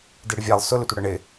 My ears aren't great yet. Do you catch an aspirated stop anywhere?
no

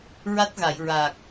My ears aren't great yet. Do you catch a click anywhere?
no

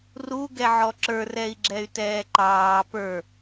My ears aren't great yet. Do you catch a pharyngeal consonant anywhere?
yes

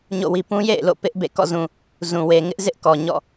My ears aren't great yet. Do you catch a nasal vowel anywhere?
yes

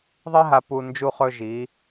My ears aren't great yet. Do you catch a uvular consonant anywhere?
yes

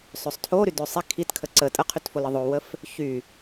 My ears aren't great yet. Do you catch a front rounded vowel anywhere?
yes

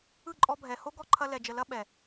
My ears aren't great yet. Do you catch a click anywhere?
yes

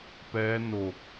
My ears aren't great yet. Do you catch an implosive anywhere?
no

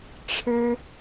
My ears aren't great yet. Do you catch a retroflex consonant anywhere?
yes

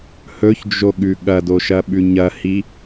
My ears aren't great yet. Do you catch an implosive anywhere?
yes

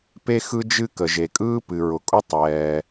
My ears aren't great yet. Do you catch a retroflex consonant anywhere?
no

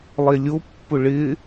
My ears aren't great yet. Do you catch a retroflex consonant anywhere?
yes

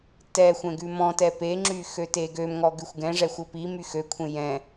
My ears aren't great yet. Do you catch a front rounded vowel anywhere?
yes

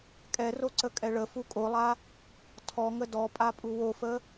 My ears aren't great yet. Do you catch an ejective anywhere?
yes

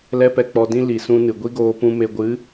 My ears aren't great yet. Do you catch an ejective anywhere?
no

